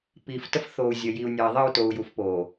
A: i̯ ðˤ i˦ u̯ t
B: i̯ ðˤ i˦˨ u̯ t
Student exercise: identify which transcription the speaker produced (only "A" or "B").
B